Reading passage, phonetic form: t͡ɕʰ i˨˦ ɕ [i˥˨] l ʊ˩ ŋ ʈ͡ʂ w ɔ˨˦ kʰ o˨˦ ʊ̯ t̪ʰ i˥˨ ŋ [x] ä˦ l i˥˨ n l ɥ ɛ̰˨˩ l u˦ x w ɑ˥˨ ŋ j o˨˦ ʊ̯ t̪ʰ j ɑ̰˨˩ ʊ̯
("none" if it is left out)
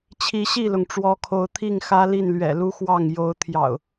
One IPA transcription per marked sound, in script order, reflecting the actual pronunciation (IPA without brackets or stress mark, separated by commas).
i˥˨, x